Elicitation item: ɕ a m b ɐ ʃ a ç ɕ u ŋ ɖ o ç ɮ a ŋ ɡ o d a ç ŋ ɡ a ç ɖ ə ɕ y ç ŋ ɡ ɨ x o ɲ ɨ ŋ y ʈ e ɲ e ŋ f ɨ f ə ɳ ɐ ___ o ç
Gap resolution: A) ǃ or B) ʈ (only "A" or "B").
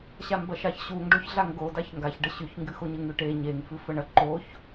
A